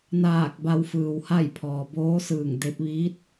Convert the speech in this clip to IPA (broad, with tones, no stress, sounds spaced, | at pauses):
n aː˧˩ k̚ b a˧ w f ɯː˩ w h a˥˨ j pʰ ɔː˩ b oː˧˥ s ɯː˧˩ ŋ d e˧ p̚ ʋ iː˧˥ t̚